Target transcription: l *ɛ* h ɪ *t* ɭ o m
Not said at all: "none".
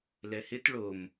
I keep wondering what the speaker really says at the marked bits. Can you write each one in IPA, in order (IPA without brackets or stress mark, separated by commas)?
ɛ, t